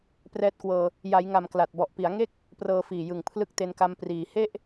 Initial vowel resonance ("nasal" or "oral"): oral